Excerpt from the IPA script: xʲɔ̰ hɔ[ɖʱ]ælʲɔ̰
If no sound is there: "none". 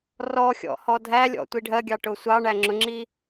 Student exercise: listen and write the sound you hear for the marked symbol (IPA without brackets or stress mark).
dʱ